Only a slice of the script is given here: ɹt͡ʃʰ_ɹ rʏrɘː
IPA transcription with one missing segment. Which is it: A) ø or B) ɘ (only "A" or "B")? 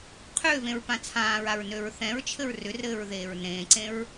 B